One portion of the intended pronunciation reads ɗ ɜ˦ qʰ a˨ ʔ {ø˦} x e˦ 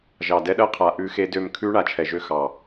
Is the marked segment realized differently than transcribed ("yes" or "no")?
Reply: yes